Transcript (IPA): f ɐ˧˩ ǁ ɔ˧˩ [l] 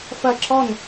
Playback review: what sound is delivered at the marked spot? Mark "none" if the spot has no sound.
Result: n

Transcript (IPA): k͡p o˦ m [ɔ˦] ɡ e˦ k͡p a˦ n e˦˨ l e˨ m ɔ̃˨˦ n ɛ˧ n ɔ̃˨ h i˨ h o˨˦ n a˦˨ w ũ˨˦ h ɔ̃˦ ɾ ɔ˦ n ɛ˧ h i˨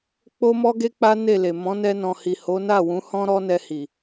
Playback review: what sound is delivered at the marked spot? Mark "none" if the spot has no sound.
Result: ɔ˦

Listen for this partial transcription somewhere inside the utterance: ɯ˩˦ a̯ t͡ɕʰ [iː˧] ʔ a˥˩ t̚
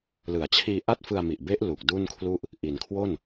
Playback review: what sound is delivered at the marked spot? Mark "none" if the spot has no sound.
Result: iː˧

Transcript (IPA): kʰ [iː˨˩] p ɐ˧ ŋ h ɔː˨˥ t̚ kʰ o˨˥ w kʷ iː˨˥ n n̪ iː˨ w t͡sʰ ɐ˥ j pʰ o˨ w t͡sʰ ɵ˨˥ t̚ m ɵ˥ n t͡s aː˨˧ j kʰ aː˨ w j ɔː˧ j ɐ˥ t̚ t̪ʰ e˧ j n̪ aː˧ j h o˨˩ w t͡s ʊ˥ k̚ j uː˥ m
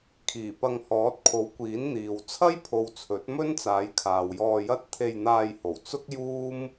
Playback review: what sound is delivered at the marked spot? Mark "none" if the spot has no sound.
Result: iː˨˩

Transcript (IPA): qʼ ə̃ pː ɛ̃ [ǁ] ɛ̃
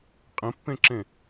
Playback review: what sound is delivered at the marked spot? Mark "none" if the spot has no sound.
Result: ǁ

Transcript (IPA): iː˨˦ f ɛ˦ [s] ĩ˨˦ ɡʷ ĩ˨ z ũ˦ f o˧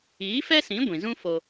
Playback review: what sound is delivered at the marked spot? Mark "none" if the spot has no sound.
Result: s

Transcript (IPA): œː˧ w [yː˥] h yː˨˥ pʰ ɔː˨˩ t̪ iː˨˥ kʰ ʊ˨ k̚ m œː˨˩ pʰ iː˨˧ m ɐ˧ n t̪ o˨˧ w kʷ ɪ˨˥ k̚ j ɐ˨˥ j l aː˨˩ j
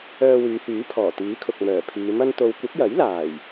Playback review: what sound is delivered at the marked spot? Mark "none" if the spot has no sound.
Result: yː˨˧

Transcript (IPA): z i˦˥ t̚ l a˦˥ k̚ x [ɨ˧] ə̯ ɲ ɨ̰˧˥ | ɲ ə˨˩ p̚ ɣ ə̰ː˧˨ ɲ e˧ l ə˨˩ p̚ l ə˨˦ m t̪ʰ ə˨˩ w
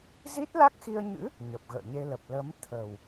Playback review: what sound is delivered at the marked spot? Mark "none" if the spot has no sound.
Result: i˧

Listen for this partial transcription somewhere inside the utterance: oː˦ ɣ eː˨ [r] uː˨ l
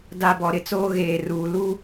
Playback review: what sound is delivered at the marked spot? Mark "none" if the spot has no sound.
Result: r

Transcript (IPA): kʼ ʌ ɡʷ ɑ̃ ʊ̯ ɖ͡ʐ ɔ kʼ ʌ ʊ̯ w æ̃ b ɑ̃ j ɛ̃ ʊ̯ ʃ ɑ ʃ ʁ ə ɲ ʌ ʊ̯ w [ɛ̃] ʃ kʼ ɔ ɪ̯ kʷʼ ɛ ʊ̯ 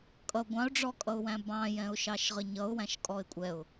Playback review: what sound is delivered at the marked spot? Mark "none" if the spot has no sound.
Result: æ̃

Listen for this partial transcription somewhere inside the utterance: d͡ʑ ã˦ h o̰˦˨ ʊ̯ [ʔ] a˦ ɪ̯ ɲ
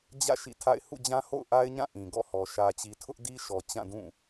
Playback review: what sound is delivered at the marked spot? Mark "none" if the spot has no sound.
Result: ʔ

